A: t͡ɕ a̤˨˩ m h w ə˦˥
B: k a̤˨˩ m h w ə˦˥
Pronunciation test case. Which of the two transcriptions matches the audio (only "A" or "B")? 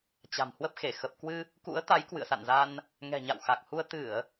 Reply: A